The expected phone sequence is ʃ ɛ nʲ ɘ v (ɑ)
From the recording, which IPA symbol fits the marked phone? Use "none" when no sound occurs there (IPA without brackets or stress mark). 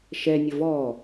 ɔ